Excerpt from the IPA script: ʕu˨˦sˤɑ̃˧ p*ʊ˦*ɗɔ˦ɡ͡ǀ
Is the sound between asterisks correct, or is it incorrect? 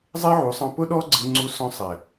correct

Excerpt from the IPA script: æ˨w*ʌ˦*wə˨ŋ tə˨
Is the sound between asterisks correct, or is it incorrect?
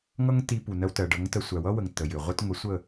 correct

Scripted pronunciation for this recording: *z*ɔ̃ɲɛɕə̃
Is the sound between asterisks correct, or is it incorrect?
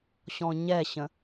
incorrect: ɕ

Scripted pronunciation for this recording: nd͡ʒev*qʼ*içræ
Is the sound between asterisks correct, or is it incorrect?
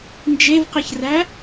incorrect: q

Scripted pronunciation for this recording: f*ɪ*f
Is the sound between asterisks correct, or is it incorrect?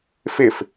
correct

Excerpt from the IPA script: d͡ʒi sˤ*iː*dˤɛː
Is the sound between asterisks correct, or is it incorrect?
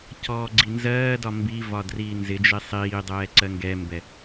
correct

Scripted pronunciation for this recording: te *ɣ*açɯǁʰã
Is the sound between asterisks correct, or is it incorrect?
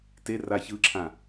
incorrect: r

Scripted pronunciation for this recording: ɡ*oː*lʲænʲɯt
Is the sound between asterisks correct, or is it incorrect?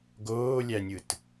correct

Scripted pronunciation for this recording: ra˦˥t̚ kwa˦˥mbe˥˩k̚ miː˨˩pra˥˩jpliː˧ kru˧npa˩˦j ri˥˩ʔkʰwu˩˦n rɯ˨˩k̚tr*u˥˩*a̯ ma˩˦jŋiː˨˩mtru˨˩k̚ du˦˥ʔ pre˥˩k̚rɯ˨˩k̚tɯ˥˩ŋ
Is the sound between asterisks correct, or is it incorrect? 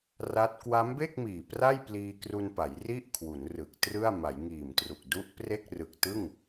incorrect: ɯ˥˩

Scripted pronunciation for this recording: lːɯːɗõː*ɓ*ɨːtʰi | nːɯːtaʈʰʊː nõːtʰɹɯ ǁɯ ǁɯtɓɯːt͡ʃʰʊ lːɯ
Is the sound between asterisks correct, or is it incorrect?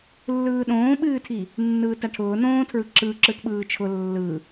correct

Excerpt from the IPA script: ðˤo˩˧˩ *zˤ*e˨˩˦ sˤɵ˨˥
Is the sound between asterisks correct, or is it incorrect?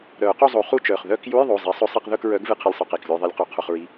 correct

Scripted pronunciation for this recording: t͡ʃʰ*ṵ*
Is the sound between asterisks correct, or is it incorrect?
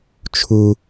incorrect: u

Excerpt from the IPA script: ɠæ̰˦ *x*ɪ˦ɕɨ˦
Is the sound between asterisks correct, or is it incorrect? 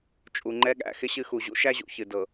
correct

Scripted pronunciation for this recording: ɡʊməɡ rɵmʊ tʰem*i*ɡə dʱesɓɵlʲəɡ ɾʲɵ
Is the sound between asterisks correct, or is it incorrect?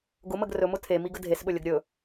correct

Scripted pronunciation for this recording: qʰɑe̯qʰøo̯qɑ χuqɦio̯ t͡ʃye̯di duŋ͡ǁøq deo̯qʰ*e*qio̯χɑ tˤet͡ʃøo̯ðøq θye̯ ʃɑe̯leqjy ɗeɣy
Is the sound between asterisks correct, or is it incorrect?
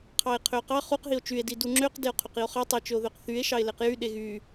incorrect: ø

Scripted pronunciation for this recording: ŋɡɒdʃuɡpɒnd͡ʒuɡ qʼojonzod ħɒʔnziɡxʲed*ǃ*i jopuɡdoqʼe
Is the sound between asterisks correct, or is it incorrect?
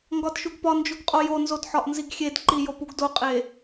correct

